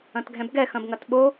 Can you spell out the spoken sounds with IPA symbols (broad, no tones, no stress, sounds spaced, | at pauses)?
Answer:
ɐ̃ t ɡʱ ɛ̃ b ɡ ɛ x ɐ̃ b ŋ ɐ t ɓ o